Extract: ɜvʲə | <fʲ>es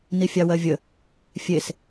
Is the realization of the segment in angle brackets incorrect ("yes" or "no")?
no